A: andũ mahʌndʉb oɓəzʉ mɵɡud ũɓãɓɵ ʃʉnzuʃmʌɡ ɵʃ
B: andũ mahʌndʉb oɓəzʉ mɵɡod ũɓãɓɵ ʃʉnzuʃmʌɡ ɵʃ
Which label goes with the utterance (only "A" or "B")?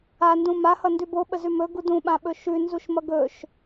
A